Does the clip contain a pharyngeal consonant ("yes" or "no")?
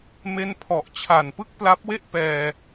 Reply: no